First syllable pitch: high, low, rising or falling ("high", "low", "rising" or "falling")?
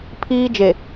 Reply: high